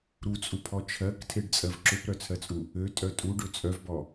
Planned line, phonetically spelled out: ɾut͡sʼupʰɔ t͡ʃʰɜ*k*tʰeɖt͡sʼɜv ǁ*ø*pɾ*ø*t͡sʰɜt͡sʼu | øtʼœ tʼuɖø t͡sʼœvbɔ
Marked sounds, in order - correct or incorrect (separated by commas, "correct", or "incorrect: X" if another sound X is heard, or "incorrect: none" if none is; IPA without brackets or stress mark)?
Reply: correct, correct, incorrect: œ